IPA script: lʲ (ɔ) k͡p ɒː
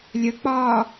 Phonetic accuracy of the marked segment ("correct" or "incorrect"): incorrect